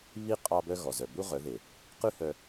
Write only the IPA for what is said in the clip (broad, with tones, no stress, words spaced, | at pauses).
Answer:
βi˦ qʼɑ˦bœ˦ ɣɔ˨zœ˨ bu˦ʁœ˨˦ðe˨ | qʉ˦hœ˧